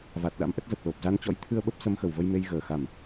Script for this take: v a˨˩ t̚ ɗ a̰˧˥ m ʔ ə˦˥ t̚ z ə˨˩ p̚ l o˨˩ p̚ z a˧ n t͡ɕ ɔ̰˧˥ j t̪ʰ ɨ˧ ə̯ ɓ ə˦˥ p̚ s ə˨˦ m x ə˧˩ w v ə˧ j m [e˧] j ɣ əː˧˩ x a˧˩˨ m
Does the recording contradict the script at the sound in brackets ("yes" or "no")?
no